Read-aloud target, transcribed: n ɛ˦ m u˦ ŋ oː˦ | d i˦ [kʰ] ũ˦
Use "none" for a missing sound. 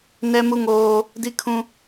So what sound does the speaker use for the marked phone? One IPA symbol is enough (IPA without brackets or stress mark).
kʰ